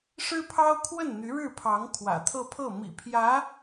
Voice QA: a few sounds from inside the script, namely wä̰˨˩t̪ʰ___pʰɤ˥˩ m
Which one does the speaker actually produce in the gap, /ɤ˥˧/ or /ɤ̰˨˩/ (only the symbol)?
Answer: ɤ˥˧